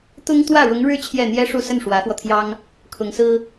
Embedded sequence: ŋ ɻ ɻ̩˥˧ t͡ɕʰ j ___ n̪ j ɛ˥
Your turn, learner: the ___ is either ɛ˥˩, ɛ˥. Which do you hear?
ɛ˥˩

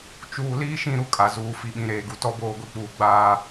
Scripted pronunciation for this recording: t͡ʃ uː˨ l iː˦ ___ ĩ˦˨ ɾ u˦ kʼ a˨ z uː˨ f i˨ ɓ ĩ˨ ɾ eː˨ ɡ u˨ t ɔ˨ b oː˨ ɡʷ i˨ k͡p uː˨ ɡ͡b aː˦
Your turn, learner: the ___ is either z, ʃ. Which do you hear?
ʃ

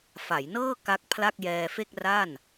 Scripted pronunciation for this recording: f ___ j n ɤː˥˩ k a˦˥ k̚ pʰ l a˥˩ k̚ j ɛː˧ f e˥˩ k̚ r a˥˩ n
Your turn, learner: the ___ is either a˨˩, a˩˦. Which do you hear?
a˩˦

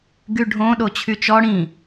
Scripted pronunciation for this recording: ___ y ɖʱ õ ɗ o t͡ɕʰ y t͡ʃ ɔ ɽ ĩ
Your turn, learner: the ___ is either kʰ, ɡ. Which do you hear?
ɡ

